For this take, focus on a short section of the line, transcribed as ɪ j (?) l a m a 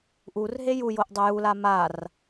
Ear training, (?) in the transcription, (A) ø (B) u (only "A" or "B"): B